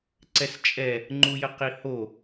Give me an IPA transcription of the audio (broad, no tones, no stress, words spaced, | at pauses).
ǀɛst͡ʃʼɛ | ŋ͡ǃujəqiho